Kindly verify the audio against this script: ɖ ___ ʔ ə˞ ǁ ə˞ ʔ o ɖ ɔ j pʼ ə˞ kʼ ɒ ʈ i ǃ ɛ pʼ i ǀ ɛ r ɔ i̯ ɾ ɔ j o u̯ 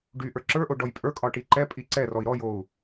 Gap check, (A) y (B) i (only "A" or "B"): A